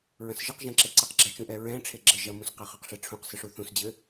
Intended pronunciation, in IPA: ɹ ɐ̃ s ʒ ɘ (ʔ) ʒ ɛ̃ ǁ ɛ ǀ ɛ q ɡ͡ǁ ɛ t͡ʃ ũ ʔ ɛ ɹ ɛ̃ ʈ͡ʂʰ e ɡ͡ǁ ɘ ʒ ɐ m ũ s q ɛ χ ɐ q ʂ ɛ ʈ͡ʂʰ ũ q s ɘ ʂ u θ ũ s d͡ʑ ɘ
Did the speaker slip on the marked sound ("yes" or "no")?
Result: yes